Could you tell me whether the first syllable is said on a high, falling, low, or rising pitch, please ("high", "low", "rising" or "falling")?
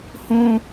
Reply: high